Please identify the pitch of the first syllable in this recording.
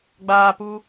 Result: high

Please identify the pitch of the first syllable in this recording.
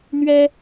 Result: high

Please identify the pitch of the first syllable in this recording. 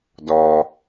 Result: low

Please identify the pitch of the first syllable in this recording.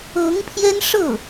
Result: rising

